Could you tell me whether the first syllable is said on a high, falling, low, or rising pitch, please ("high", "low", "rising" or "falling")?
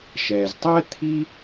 low